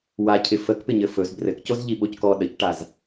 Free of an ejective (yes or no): yes